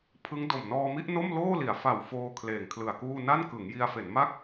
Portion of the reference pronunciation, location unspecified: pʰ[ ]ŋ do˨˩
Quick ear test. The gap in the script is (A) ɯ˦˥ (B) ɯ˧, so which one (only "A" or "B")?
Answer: A